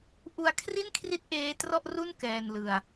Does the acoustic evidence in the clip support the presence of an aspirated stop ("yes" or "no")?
yes